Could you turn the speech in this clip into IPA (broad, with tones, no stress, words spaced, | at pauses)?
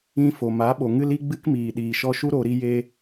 ĩ˦ fo˨ma˨˦ ɓo˨ŋɨ˦li˦ɡ͡bɨ˦k miː˨ɗiː˨ʃɔ˧ʃu˦ ɾo˧ɾi˦je˦